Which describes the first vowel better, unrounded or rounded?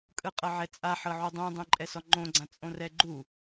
unrounded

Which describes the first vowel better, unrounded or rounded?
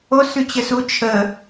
rounded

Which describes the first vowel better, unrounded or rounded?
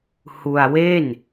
rounded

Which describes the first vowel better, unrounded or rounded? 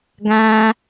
unrounded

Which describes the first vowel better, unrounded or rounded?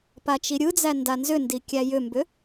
unrounded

